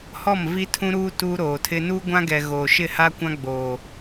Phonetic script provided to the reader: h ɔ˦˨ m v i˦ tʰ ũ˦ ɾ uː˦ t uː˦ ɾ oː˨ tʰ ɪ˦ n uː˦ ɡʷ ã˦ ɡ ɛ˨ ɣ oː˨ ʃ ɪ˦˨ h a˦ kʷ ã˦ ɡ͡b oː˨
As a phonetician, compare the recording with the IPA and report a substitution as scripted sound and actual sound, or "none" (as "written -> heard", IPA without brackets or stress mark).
none